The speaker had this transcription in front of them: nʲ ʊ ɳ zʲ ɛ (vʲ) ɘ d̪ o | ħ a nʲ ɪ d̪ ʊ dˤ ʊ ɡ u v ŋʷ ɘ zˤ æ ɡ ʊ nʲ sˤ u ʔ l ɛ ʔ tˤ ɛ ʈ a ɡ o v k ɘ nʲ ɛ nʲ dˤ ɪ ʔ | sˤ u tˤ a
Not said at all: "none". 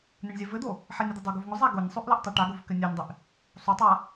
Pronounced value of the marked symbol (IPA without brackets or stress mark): v